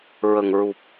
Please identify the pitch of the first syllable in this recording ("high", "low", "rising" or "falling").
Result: low